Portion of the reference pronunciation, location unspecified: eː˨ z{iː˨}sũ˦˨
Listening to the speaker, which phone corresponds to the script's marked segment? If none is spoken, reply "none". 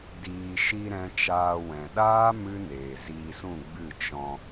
iː˧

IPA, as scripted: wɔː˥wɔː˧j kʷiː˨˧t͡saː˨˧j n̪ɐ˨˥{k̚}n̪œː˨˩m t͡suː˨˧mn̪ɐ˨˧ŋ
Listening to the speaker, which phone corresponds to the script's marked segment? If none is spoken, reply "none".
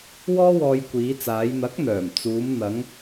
k̚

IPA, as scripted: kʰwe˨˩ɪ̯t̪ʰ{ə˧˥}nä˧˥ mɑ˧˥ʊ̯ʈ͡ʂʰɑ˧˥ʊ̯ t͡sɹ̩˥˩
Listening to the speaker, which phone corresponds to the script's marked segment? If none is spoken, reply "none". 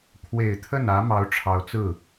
ə˥˩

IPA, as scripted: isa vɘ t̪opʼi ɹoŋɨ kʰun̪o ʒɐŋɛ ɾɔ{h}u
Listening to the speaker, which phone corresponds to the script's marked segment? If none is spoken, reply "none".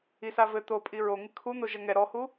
h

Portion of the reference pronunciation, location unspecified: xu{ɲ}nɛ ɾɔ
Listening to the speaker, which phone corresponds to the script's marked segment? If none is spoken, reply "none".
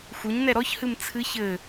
ɲ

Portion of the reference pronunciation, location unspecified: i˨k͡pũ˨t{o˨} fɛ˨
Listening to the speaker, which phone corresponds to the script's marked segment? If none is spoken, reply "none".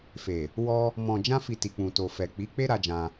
o˨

